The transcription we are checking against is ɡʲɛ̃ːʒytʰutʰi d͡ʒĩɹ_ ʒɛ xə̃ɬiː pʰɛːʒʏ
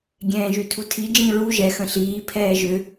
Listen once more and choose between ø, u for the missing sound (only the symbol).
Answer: u